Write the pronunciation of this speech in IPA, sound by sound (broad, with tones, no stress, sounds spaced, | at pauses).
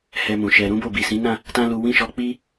h ɛ˧ m ũ˨ ʃ ɛ˧ ɾ ũ˦ b o˦˨ b i˨ s ĩ˨˦ n ã˦˨ | t ã˦ l u˧ w ĩ˦ ʃ ɔ˧ k͡p i˦